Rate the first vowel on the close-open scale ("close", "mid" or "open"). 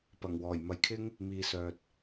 open